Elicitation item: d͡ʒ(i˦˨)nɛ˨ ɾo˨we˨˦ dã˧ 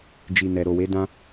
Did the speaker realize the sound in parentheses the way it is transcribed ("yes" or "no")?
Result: no